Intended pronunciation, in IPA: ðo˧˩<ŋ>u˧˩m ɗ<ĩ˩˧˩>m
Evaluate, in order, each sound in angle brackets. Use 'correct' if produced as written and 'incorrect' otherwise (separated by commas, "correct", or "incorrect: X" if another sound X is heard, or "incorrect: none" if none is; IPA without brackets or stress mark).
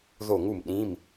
correct, correct